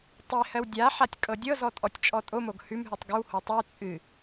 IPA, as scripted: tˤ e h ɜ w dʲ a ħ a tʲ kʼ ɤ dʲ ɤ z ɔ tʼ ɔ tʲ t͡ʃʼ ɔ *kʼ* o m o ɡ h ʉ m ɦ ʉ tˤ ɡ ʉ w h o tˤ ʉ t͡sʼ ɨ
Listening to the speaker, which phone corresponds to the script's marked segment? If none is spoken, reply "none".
tʼ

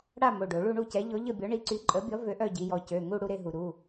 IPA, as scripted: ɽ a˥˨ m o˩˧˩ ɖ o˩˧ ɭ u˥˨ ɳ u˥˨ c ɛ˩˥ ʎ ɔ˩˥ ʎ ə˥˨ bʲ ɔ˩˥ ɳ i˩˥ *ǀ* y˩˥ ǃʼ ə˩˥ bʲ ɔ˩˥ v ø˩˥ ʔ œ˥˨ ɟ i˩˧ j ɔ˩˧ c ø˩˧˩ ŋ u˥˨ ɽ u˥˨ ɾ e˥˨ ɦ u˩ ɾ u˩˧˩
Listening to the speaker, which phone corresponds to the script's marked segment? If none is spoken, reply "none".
ǀ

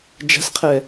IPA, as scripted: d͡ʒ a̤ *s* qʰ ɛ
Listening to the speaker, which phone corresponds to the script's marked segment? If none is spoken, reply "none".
s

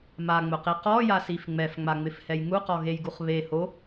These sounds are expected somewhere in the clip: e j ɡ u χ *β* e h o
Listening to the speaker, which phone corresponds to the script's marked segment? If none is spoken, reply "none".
β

